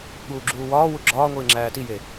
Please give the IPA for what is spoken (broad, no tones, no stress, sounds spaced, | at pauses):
ɠ uː ɡ͡ǁ uː w ɒː w u ɡ͡ǁ ɒː ŋʷ iː ŋ͡ǁ æː t i j e